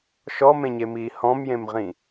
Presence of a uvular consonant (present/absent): present